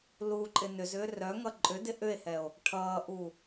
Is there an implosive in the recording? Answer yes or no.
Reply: no